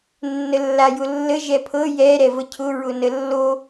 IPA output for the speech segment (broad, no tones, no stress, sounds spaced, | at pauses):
nː ə lː a j ʊ lː ə ʒ ɛ pʰ ɤ j ɛ ɾ ɛ v ə cʰ ʊ ɹ ʊ n ə lː o